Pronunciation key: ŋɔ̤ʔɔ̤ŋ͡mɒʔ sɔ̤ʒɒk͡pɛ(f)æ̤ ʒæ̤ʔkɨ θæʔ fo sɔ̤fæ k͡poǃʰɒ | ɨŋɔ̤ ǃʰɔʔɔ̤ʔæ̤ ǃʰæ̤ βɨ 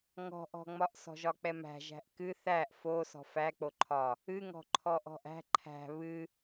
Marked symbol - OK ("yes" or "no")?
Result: no